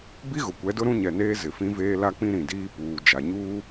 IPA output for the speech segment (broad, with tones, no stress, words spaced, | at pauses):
bi˦ɣʊ˨kʷɛ˨˦dʊ˦ ɾũ˦ɲɛ˨neː˦ zɪ˨fĩ˦veː˦ la˦k͡pĩ˦ ɾĩ˨diː˦puː˨ d͡ʒa˨ɲuː˦